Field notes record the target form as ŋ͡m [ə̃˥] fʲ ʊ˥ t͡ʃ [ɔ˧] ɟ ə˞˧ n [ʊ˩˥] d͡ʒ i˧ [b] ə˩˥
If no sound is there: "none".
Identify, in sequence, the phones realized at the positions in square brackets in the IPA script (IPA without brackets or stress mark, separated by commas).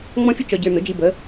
ɔ̃˥, ɔ˧, ʊ˩˥, b